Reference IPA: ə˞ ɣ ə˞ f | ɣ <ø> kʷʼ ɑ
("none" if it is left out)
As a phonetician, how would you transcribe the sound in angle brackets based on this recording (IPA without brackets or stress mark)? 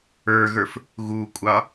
u